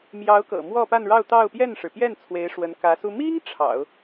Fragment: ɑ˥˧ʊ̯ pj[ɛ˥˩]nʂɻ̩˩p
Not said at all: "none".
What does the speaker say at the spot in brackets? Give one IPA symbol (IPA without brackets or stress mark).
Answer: ɛ˥˩